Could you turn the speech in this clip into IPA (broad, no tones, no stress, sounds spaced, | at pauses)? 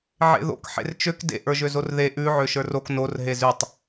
ʕ ḛ ð o̰ k ħ ḛ r t͡ʃ ø k d ḛ ʔ ə˞ ʒ ø z o r ð e ʔ ʉ ʕ ø ʃ ə˞ r o k n o r ɦ e z ʉ tˤ